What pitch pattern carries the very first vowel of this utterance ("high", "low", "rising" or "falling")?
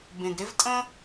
low